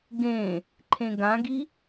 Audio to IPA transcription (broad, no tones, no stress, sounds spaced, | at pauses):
ɡ ẽ | ǃʰ ẽ ɡ ã ɡ i